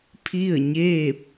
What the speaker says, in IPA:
pʰ i˥˨ ə̯ ɲ eː˥˨ p̚

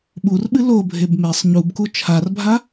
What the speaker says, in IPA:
ɓ u r ɓ ɨ l o bʱ e b m e sˤ ɲ u b k u t͡ʃʰ a r bʱ a

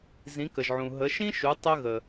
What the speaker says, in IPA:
z ĩ˩˧ k ə˩ ʒ ʕ ũ˩ ɦ ə˩˧ ʃ ĩ˥ ʃ u˩˧ tˤ ə˧ ɣ ə˩

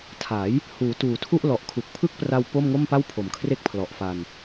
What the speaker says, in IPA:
tʰ a˩˦ j | h uː˩˦ t uː˨˩ tʰ u˥˩ ʔ l ɔ˨˩ ʔ kʰ u˨˩ k̚ pʰ ɯ˥˩ k̚ p r a˧ w p o˥˩ m ŋ o˥˩ m p a˥˩ w pʰ o˨˩ m kʰ r e˦˥ k̚ pʰ l ɔ˨˩ ʔ f a˧ n

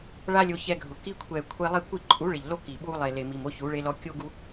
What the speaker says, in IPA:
ɭ a˦ lʲ o˧ ç ɛ˧ ɡʱ ʊ˨ k i˧ kʷʰ ɛ˨ kʷʰ e˧ lˠ i˦˨ kʷ i˦˨ ǃʼ u˨˦ ɭ ɪ˨ ʎ l o˧ k i˨ ɓ u˧ lˠ e˨ l e˨ m i˨ m o˧ ç u˨˦ ɭ e˧ l ɔ˧ kʲ o˦ ɡ u˦

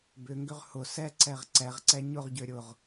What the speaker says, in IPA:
b ʏ ŋ ɡ ʏ ʁ h ʊ s ɛ ǀ ɛ ʁ ǀ ɛ ʁ ǀ ɛ ɲ ʊ ʁ ɟ ø ɾʲ ʊ ʁ

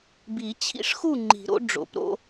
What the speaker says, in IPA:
b i˨˩˦ t͡ɕʰ ḭ˦ ʂ x u˥˨ ŋ͡ǃ i̤˨˩˦ ɾ o̰˨˥ ɖ͡ʐ o̰˨˩˦ p ɾ o̰˦

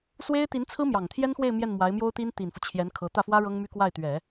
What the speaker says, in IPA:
s w e˥ ɪ̯ t̪ i˧˥ n t͡sʰ ɹ̩˥ m j ɑ˨˩ ŋ t̪ʰ j ɛ˥ n x w e˥˧ ɪ̯ m j ɛ˥˩ n m w a˧˥ ɪ̯ m j o˥ ʊ̯ t̪ i˥ n t̪ i˨˩ n f u˦ t͡ɕʰ j ɛ˧˥ n kʰ ɤ˧˥ t̪ ä˥˩ f w ä˥ ɻ ɤ˥ ŋ m y˥ k w a˥˩ ɪ̯ t̪ ɥ ɛ˨˩˦

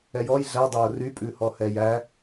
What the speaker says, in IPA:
ɛ j ɔ j ɮ æ dˤ æ ʊ̯ r y pʼ ʉ h ɔ h ɛ j æ

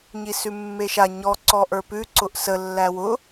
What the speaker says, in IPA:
ɲ i s ʉ mː e ʃ a ɲ ɔ ǀ ɔ ʔ ə˞ p ʉ ǀ ʊ ʔ s ə lː æ w ʊ

